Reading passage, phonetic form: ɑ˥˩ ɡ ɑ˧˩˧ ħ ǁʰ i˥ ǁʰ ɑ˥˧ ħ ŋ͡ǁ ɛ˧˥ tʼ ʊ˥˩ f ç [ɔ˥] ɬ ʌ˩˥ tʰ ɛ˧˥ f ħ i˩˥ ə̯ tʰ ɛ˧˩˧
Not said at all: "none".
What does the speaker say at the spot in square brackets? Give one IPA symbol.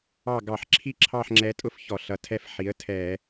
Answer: ɔ˧˩˧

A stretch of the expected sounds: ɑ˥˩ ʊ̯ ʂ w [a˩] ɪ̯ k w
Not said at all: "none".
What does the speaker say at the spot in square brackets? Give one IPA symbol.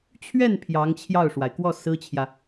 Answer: a˩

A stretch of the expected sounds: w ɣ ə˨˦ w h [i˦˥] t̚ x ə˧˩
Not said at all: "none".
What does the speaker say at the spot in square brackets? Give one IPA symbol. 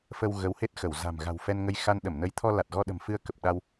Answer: e˦˥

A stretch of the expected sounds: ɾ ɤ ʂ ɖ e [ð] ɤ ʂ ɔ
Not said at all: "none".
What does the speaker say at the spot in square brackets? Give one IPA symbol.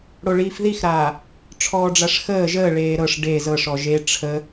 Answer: z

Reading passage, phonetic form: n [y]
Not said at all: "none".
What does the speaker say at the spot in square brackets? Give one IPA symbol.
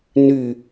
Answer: y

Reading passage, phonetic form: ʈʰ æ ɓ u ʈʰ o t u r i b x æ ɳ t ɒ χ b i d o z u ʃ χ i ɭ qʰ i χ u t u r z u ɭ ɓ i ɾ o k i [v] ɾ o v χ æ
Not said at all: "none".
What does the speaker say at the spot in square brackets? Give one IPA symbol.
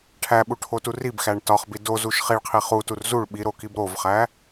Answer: b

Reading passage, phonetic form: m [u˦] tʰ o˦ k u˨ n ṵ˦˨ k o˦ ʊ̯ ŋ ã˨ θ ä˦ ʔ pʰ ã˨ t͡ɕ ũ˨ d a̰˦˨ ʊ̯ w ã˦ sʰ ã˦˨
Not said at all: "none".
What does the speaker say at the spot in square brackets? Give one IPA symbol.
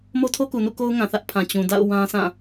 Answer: o˦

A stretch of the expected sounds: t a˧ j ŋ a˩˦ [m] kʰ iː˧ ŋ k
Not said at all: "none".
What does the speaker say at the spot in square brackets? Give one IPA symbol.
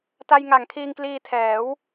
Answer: ŋ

